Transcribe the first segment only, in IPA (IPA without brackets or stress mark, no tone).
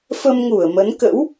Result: f